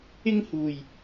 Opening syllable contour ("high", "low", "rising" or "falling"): high